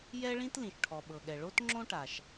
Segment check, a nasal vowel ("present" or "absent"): present